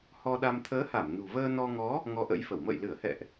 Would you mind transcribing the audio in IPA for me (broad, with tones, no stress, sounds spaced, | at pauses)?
h ɔ˧ ɗ a˧ m t̪ʰ əː˨˦ h a˧˩ m n ṳ˨˩ v əː˧ n ɔ˧ ŋ ɔ˨˦ | ŋ ɔ˨˦ ʔ ə̰˧˥ j f ə˧˩ w m ə̰ː˧˨ j l ɨ˧˩ ə̯ h ɛ̰˧˨ ʔ